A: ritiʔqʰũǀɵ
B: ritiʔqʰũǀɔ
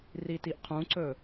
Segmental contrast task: A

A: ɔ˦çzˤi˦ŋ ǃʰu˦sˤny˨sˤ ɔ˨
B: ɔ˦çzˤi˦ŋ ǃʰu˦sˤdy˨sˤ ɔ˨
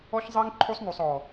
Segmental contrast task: A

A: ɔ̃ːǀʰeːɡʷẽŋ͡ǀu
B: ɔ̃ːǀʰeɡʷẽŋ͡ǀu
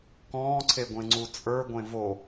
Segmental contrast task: B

